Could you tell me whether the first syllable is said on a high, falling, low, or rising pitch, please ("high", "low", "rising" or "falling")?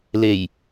low